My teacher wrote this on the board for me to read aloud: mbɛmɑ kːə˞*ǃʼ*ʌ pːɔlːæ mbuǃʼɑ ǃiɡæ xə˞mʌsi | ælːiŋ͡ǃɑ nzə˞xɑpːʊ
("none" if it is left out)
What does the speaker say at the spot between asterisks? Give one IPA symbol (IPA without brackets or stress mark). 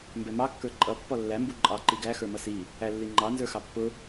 ǃʼ